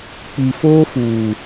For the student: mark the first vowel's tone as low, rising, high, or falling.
low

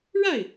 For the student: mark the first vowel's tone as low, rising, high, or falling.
falling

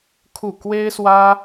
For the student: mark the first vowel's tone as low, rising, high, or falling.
falling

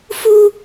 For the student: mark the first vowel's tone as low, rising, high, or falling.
high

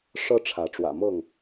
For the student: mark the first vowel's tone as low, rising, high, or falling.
high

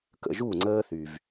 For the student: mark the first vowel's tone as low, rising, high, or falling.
falling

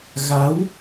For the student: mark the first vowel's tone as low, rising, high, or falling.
rising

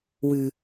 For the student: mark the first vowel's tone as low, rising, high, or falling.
low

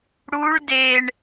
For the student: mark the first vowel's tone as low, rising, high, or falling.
rising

